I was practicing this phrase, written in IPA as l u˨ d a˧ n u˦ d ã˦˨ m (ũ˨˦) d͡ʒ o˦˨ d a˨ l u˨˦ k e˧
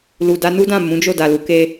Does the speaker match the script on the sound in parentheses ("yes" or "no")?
yes